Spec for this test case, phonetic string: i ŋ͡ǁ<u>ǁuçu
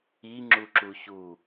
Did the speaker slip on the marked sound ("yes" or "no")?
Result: no